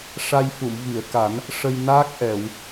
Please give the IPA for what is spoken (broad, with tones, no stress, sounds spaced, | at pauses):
ʂ a˧ j f u˨˩˨ m v i˨˩˨ ə̯ k a˨˩˦ n | ʂ ə˧ j n aː˦˥ k̚ ʔ ɛ˨˩˨ w